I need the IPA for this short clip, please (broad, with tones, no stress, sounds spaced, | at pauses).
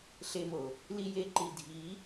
ɬ e˧ m o˨ | l i˧ j e˧ ǃ i˨ dʱ i˨˦